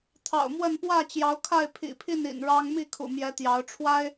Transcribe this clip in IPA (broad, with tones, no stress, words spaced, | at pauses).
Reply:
t̪ʰɑ̰˨˩ʊ̯mwə˥˨n pwä˥˨t͡ɕjɑ˨˦ʊ̯kʰa˥˨ɪ̯ pʰḭ˨˩pʰi˥˨nḭ˨˩n ɻɑ˦ŋ mi˥˨kʰṵ˨˩mjɛ˨˦ t̪jɑ˨˦ʊ̯ ʈ͡ʂʰwa˦ɪ̯